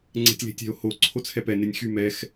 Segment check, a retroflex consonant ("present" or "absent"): absent